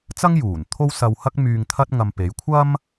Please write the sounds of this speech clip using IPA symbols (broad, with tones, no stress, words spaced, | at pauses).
t͡sɐ˥ŋjuː˨˩n t̪ʰo˥wsɐ˧whɐ˥k̚ myː˧ŋt̪ʰɐ˥t̚ ŋɐ˧mpe˨˥j kʷʰɐ˥m